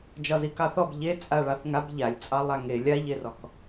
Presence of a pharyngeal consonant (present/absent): absent